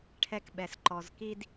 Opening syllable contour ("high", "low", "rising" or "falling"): high